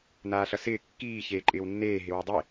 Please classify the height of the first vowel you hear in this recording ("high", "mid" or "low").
low